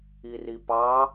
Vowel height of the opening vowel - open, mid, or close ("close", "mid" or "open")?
close